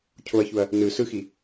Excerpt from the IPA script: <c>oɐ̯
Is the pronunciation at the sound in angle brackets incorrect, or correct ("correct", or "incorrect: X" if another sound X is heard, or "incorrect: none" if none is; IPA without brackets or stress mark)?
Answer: incorrect: cʰ